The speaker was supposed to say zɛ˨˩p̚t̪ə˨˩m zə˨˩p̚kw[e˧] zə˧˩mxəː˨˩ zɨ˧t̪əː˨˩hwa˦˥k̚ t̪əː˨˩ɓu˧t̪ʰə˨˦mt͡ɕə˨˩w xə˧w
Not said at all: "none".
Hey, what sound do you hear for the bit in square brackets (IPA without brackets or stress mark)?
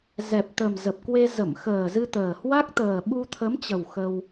e˧